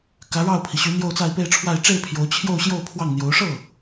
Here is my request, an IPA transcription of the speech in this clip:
k ä˧˥ ɻ ɑ˥˩ ʊ̯ pʰ i˩ ɕ y˧˥ n̪ j o˥˧ ʊ̯ t͡s a˥˧ ɪ̯ p e˥˧ ɪ̯ ʈ͡ʂʰ w a˥˧ ɪ̯ ʈ͡ʂ e˥˩ ɪ̯ pʰ j o˧˥ ʊ̯ t͡ɕʰ j o˥˧ ʊ̯ ɕ j o˥˧ ʊ̯ pʰ w ɑ˥˩ ŋ n̪ j o˧˥ ʊ̯ ʂ ɤ˥˩

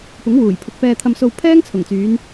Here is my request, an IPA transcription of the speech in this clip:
p ʊ˨˥ ŋ w uː˨˩ j pʰ ʊ˨ k̚ p ɛː˧ t̪ʰ ɐ˧ m s o˧ w pʰ ɛː˥ ŋ t͡sʰ ʊ˨˩ ŋ t͡s yː˨˧ n

